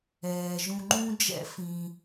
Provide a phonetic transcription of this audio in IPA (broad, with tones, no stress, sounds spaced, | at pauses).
ɛː˩ ʒ ũ˨ ŋ͡ǃ ũ˦ d͡ʒ ɛ̰˦ f ĩ˨